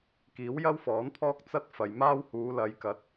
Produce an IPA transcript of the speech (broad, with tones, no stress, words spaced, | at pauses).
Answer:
kiː˨˥w jɐ˥wfɔː˨˥npʰɔː˥k̚ t͡sɐ˥t̚fɐ˨jmaː˥w huː˨˧lɐ˨˧jkɐ˨˥t̚